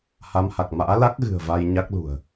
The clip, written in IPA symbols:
ha˨˦mha˨˩k̚ ma̰ː˧˥la˦˥k̚ɣɨ̤˨˩ə̯ va˧jɲa˦˥k̚lṳ˨˩ə̯

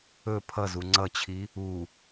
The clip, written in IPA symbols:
ɵ pʰʌzu ŋ͡ǀʌt͡ɕʰi | u

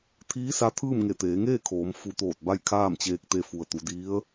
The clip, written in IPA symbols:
t̪ʰiː˧˥sa˧˥t̪ʰɯː˥˨mŋe˧˩ t̪eː˩˧ŋeː˥˨ kʰoː˩˧m fu˧˩t̪oː˧˩t̚ ba˥˨jkʰaː˥˨mt͡ɕeː˧k̚t̪e˧ fu˩ə̯t̪u˩˧di˧˥ə̯

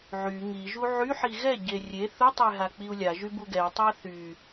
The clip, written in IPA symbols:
ʕy ŋiʒu ʕyħi ɣɛɟe rʲe θutˤe ɦak͡piu̯lʲaʒy buɡɛtˤa θy

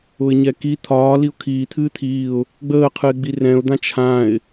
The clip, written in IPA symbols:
ʊɪ̯ɲɛki t̪ʰɒː liʊ̯kʰiː t̪ʰɨːt̪ʰiːʊ̯ | ɡ͡bəːqʰɨɪ̯ɡ͡bi rɛ̃ʊ̯d̪ã t͡ʃʰãɪ̯

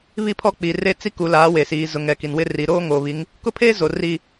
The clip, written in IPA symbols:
βi˦˨pʰɔ˦k͡pi˨ re˦ t͡si˦ku˨ laː˨˦we˨siː˨ zʊ˨ŋɛ˨ ki˨nwɪ˦ ri˨ɾoː˦ ŋoː˨βi˨˦ŋ | kʊ˦pʰeː˦zo˨ ri˦

